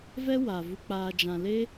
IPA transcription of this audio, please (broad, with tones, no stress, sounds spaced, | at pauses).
v ɛ˦ w a˨ v u˨ k͡p aː˨ d͡ʒ ã˨ l e˧